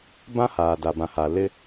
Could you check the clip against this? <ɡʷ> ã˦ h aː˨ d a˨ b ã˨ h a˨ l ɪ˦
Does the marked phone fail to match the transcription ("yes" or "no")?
yes